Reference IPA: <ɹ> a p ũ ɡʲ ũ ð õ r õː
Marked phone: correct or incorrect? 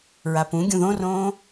correct